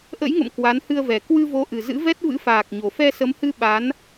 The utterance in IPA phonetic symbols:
ʔ ə̰˧˥ j ŋ ə̰˧˨ m k w a˨˦ n h ɨ˧ ə̯ v ɛ˨˩ k w ɨ˧ v o˨˦ ʔ ɨ˨˩ z ɨ̰˧˥ v ɛ˦˥ t̚ v ɨ̰˧˥ f aː˨˩ k̚ ɲ o˨˩ f ɛ˧ s ə˨˦ m h ɨ˧ ɓ a˨˦ n

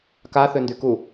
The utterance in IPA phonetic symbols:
k a θ ø n d y k u

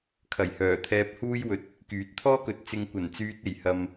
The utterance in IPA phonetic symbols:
kʰ ɐ˨˩ j h œː˨˩ t̪ʰ ɛː˧ p̚ h uː˥ j w ɵ˧ t̚ | k yː˨˥ t̚ t̪ʰ ɔː˥ k ɵ˨˥ t̚ t͡s ɪ˧ ŋ kʷ ɐ˨˩ n t͡s yː˧ t̚ e˨˩ j h ɐ˨ m

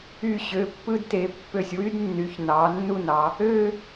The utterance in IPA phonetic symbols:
y˧˩ ɕ ø˩˧ pː ɯ˧ d t e˩˧ pː ø˧˩ sʲ w y˥ d nː y˩˧ ç n ɑ˩˧ nː u˥˧ n ɑ˩˧ | ø˥˧

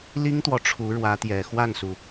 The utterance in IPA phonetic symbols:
l i˥ ŋ t̪ w ɔ˨ ʈ͡ʂʰ u˧˥ ɻ w ä˧˥ t̪ j ɛ˨˩ x w a˥˩ n s u˩

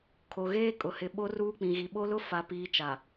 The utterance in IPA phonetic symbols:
kʰ o˨ ɣ eː˦ kʼ ʊ˨ h ɪ˨ ɓ o˦ r uː˦ k͡p ĩ˨ ɣ i˨ ɓ o˦ l ʊ˦ f a˨ p iː˨ t͡ʃ a˨

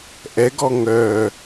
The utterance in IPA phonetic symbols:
ʔ ɛ ɡ ɔ ŋ œ

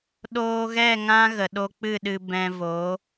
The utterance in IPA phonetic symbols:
ɗ oː˧ ɣ ɛ˦˨ ŋ ã˦ ɣ ə˨ ɗ o˧ k͡p ɨ˦˨ ɗ ɨ˧ b ɛ̃˧ v o˨˦

